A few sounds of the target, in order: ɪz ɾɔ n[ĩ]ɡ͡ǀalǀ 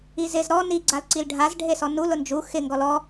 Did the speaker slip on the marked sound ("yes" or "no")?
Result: yes